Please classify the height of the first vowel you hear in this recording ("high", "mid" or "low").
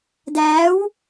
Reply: low